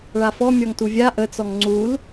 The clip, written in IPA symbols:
ɭ a f ɔ mʲ ɔ ŋ t u vʲ a ʔ ə t͡s ɔ ŋ ŋ͡ǀ u l

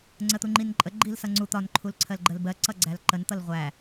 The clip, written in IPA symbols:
ŋ͡ǀ ə t̪ u ŋ͡ǃ i n ǃʼ ə ɡ͡ǃ i l s ʌ ŋ͡ǀ u t̪ ɒ n ǃʰ u l ǀʰ ɜ l ɡ͡ǃ ə l b ɜ ǀ ʌ ɡ͡ǀ æ l ǃ ə n t̪ ʌ l ʁʷ æ

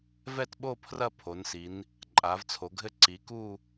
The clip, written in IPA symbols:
v ɛ˦˨ t ɓ o˦˨ pʰ r ɐ˦˨ pʰ o˩˧ n s i˩˧ n | ǃʼ a˩˧ v t͡sʰ o˩˧ ɡʱ ɘ˦˨ ǀ i˩˧ k u˦˨

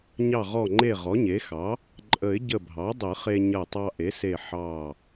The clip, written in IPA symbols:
ɲ ɑ˧˩ ʁ ɔ˧˩ ŋ͡ǃ e˧˩ ʁ ɔ˩˥ ɲ e˩˥ x ɑ˩˥ | ǃʼ ə˨˩˦ ɪ̯ ɟ ə˧˩ bʱ ɑ˩˥ dˤ ə˨˩˦ χ e˧ ɲ ɐ˧˩ tˤ ɑ˧ ʔ e˩˥ s e˧˩ ħ ɑ˧˩

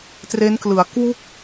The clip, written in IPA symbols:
t r e˦˥ n k l ɯ˩˦ a̯ k w u˥˩ k̚

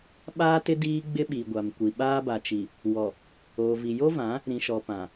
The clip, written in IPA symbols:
ɓ aː˦ t ɪ˦ d iː˦ ɡ͡b ɪ˦ ɓ i˨ ɡʷ a˨ m kʷ i˨ ɓ aː˦ b a˨ t͡ʃ i˨ | w ɔ˨ | oː˨ v i˨ j o˦ v ã˨˦ | ɾ ĩ˨ ʃ ɔ˨ p ã˨

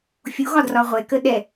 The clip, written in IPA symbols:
fʲ u ɣ ɒ d r ɒ ʁʷ ɛ k ə ɗ ɛ

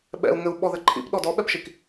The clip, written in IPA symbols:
ɓ ɛ̰ u̯ ŋ ɘ u̯ ɓ ɔ ð ɘ ǃʰ ḭ p ɗ ɔ d ɔ ɓ ɛ p ʃ i k

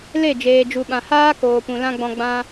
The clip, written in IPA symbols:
l e˦˨ d͡ʒ eː˨ d͡ʒ u˨ ɓ ã˨ h aː˦ k oː˨ p ũ˨ l ã˦ ɡ͡b ɔ̃˧ ɡ͡b ã˧

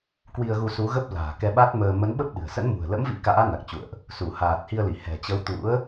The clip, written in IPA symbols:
k w i˧ ə̯ ɣ u˧ s u˨˦ ɣ ə˦˥ p̚ l a̤ː˨˩ k ɛ˧ ɓ a˦˥ t̚ m əː˧ m ə˨˦ n ɓ ə˦˥ p̚ ɗ ɨ̤˨˩ ə̯ s ə̰˧˥ n m ṳ˨˩ ə̯ l ə̰˧˥ m v ḭ˧˥ k a̰ː˧˥ n a˨˩ k̚ t͡ɕ ṵ˧˨ ə̯ ʔ | s u˧˩ h aː˨˩ t̚ h i˧ ə̯ l i˧˩ h ɛ̤˨˩ t͡ɕ ə˨˦ w t̪ ṵ˧˥ ə̯

